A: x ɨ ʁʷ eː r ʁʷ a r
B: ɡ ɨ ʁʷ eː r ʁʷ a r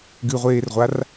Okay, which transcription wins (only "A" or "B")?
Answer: B